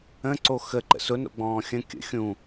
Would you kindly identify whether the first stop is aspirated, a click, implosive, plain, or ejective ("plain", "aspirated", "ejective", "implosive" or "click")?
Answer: click